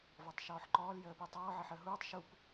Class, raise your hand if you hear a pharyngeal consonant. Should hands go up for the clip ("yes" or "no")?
yes